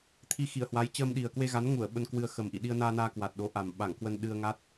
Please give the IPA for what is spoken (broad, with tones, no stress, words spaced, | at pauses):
t̪ʰi˧xi˧˩ə̯hwa˨˦j t͡ɕəː˧mɗi˨˩ə̯ kwe˧ɣa˨˦nŋu˧˩ə̯ ɓə˧nkwɨ˧ə̯ xə˨˩m ʔḭ˧˨ɗi˧ə̯naː˧naː˧ kwa˨˩t̚ɗo˨˦ʔa˨˩m ɓa˧˩ŋkwə˧nɗɨ˧ə̯ŋa˦˥t̚